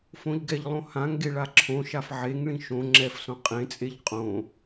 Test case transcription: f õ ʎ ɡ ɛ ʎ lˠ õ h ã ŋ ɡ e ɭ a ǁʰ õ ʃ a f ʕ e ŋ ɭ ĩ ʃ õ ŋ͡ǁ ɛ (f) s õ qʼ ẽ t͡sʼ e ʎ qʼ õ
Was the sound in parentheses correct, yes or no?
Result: yes